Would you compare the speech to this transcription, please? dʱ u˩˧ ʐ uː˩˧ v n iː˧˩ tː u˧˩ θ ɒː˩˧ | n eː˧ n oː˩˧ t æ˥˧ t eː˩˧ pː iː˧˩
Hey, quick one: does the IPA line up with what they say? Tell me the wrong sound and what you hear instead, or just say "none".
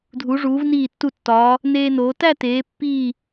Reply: θ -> tː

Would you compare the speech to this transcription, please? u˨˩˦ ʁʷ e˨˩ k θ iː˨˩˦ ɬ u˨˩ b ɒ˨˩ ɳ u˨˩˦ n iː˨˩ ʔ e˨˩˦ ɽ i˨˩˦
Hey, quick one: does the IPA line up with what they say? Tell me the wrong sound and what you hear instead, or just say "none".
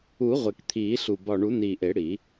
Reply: θ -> t̪ʰ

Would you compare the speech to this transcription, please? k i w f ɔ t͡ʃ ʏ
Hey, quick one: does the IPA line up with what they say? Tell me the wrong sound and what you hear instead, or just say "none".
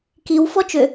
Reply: none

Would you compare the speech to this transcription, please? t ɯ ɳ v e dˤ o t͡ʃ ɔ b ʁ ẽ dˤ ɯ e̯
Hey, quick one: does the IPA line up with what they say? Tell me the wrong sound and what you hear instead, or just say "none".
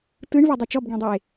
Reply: ʁ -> ɡ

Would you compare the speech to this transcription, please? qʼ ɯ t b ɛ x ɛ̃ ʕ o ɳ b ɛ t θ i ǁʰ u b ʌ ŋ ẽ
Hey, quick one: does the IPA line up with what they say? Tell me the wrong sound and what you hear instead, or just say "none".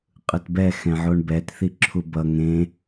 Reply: none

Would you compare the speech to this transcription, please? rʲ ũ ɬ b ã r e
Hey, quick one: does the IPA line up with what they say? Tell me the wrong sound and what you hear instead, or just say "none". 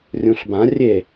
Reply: r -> rʲ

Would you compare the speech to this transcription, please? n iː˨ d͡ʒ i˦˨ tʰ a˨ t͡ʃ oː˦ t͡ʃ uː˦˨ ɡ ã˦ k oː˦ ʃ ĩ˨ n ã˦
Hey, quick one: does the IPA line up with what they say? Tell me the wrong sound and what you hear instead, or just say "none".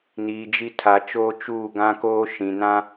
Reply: none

